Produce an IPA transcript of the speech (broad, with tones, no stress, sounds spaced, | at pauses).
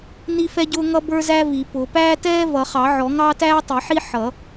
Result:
n i˥ f ɛ˥ ɟ ʊː˥ ŋ ʌ˥ b ə˞˥ z æ˥ v i˨˩˦ p ʊ˨˩˦ p æː˥ t ɛː˥ v ʌ˨˩˦ χ ɑ˨˩˦ ʕ ɔ˨˩˦ ŋ ɑː˥ t æː˥ tˤ i˨˩˦ ħ i˥ ħ ʌ˨˩˦